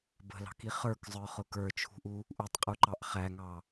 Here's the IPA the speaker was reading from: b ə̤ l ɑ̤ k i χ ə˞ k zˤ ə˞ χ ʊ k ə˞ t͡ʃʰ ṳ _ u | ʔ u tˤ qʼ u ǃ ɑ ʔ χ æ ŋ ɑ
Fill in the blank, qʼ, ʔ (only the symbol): ʔ